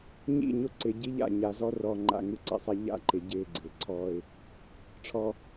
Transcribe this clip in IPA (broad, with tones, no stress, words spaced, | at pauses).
ɲḭ˦˨ɲʊ˦ ǀɪ˨ ɟi˦ʎa̰˦˨ ɲa˨zɔ˦rɔː˨ ŋ͡ǃa̰˨ŋu˦˨ǀḭ˨sˤa˦ ʎa̰˦ ǃɪ˨ɟɪː˦˨ ɡ͡ǀɪː˨ǀʰɔː˦ɪ̯ | ʈ͡ʂʰɔ˦